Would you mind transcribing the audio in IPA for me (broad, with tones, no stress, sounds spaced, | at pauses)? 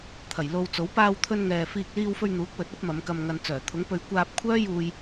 t̪ʰ ɐ˨˩ j l o˧ w t͡s o˨˥ w p aː˧ w t̪ʰ ɵ˧ n ŋ ɛː˨ f iː˧ k̚ l iː˧ w f ɵ˧ ɥ n̪ uː˨˥ k̚ w ɵ˨˥ t̚ ɐ˨˥ p̚ m ɐ˨˧ m k ɐ˧ m ŋ ɐ˧ n t͡s œː˨˩ t̪ʰ ʊ˨˥ ŋ p ɵ˧ ɥ kʷ aː˧ p̚ kʷʰ œː˥ j uː˧ j